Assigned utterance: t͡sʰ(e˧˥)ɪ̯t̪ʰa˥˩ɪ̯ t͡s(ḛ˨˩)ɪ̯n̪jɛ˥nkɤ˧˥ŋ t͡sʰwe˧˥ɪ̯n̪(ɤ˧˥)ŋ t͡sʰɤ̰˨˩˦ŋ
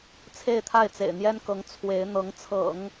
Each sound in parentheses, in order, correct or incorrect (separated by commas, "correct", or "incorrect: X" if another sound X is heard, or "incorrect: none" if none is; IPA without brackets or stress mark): incorrect: e˥˧, correct, correct